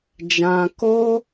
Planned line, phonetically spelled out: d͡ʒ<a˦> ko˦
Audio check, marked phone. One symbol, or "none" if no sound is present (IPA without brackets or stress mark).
ã˦